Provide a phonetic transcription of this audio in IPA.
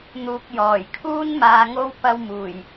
n̪ uː˨ k̚ j ɔː˨˩ j kʰ uː˥ n m aː˧ ŋ o˥ w p ɐ˧ w m uː˨˩ j

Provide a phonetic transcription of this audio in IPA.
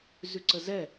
z ʉ ǀ ə z ɛ

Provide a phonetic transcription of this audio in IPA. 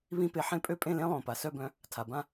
β ĩ˦˥ p e˨˥ ħ ẽ˦˥ pʼ ø˥˧ pʼ ẽ˥˧ l ẽ˦˥ lˠ õ˩ p a˩ s œ˥˧ b œ̃˨˥ | tʰ a˩ b ã˥˧

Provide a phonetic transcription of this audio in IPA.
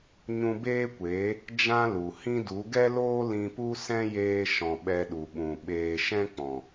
ɲ ũ˧ b eː˦ kʷ eː˨˦ | d͡ʒ ã˦ l u˨ h ĩ˦ d u˨˦ ɡ ɛ˦ l oː˦ l ĩ˧ p u˦ s ɛ̃˦ j eː˧ ʃ ɔ̃˨ ɓ ɛ˧ ɗ u˨ ɓ ũ˨ ɓ eː˨ ʃ ɛ̃˦ k͡p ɔ̃˨

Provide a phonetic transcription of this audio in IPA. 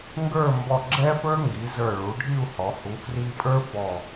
ŋ ɡ ə˞˥˧ m b ɔ˧˩ ɡ͡ǁ ɛ˥ f ə˞˥ ŋ ɡ i˩˧ z ə˞˧˩ ɭ u˩˧ ɖʱ i˥˧ u̯ h ɔ˩˧ h u˩˧ f r i˧ pʼ ə˞˥ f ɔ˧˩

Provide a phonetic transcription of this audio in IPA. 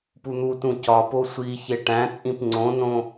p u n̪ u t ũ c ɒ p o sʷ i ç e ʈ æ̃ t͡sʼ ĩ p ŋ͡ǀ õ n õ

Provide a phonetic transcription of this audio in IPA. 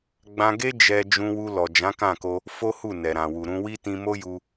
ɡ͡b ã˧ ɡ e˦ d͡ʒ ɛ˧ d͡ʒ ũ˧ w u˧ l ɔ˨ d͡ʒ ã˨˦ k ã˦˨ k o˧ | f o˦ h u˦˨ n ɛ˨ ɾ ã˨ w u˨ ɾ ũ˧ w i˦ t ĩ˧ m o˦ j u˧

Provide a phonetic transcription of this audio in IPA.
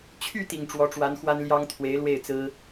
t͡ɕʰ y˥˩ t̪ i˨˩ ŋ ʈ͡ʂ w ɔ˧˥ ʈ͡ʂ w a˧˥ n x w a˥ n l j ɑ˥ ŋ t̪ʰ w e˧˥ ɪ̯ l w e˥˩ ɪ̯ t͡s ɹ̩˥

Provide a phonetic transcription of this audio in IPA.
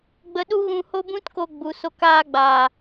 ɡ͡b ə˧ ɗ u˦ ɣ ũ˧ h o˦ b ũ˦ t k o˧ ɡ͡b u˨ s o˧ k aː˧ ɡ͡b aː˨

